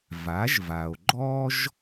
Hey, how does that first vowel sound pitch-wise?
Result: rising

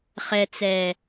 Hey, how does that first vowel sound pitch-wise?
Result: low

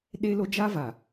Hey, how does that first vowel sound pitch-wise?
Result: high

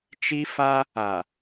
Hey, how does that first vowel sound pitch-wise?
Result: high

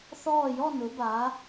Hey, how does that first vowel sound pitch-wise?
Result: falling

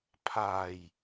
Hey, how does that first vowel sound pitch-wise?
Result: low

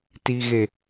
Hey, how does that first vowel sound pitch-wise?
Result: low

